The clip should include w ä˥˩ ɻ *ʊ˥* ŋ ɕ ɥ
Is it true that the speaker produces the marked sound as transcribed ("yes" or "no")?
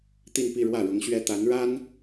no